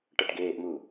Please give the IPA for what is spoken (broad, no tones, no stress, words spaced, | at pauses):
ʈʌʈɡeːʔmu